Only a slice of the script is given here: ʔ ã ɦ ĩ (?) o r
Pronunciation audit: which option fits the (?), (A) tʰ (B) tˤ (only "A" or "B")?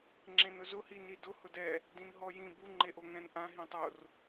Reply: B